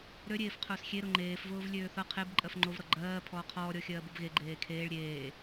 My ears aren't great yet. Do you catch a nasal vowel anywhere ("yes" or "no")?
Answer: no